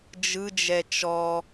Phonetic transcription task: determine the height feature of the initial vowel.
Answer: high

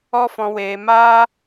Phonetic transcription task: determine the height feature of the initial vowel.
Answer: mid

